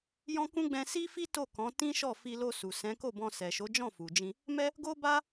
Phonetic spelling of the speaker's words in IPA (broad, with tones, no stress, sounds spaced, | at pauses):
j ɔ̃˦ k ũ˦ ɡ͡b ɛ̃˧ s i˦ f i˦ t o˦˨ k ɔ̃˨˦ t ĩ˦ ʃ ɔ˦˨ f i˧ l o˧ s u˨ s ɛ̃˨˦ k o˦˨ b ɔ̃˧ s ɛ˨ ʃ o˨˦ d͡ʒ ɔ̃˦˨ f u˨ d͡ʒ ĩ˧ | m ɛ˦ | ɡ o˦ b a˦